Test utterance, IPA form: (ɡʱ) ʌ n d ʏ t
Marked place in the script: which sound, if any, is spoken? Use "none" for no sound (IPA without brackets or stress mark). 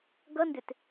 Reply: ɡ